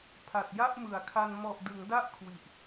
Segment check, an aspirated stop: present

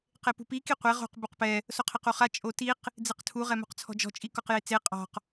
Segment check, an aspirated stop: present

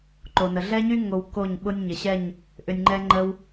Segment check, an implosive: present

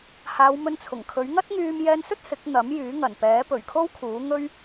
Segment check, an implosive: absent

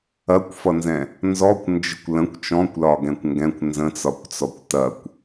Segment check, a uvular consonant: absent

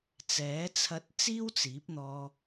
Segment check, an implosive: absent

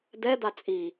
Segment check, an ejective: present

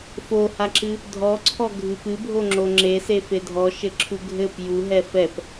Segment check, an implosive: absent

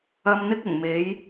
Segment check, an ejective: absent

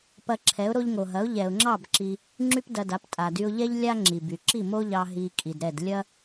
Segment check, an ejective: present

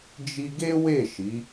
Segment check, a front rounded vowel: absent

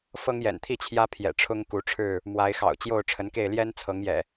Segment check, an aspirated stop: present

